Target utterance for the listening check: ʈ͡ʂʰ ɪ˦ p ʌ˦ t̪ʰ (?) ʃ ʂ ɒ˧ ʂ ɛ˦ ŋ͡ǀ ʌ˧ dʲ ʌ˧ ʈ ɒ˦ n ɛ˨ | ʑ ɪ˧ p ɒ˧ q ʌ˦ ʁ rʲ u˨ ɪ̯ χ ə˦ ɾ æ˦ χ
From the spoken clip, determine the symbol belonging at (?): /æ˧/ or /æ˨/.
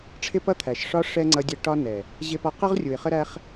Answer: æ˨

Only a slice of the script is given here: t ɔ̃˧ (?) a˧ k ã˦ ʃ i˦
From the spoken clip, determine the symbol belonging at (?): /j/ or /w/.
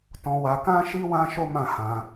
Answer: w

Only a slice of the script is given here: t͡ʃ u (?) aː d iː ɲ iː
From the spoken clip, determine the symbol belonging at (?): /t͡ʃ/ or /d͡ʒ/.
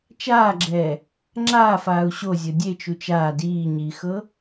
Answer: t͡ʃ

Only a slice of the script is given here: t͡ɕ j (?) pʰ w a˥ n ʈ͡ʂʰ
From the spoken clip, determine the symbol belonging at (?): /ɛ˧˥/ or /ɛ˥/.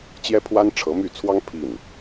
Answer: ɛ˥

